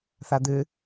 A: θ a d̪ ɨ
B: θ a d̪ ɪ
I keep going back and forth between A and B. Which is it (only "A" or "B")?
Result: A